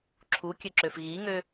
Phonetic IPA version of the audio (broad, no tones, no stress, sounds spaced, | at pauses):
ǁʰ u kʲ ø ǁ ø f ɣ i ŋ ø